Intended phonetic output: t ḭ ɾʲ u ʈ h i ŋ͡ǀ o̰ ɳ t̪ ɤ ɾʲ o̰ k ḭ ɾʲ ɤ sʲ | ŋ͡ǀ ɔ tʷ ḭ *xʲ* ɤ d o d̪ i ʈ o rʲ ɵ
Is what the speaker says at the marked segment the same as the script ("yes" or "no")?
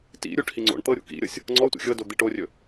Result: yes